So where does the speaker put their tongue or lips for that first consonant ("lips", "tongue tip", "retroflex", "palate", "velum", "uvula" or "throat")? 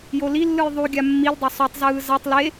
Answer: palate